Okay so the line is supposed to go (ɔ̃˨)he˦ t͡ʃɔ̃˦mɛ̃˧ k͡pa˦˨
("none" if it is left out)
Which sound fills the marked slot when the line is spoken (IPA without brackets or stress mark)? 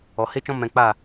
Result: ɔ˨